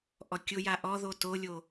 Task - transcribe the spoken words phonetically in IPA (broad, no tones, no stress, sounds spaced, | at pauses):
ʔ ɔ kʲ ʊ j a ʔ ɔ ð o t o lʲ o